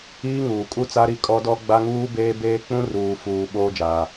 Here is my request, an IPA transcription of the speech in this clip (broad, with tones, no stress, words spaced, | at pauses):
iː˦ŋuː˨kʼu˦ t͡sa˦ɾi˦kʼɔ˦ dɔ˦ɡ͡ba˦ŋuː˦ beː˦beː˦ k͡pũ˦ruː˨fuː˨ ɓoː˦d͡ʒaː˨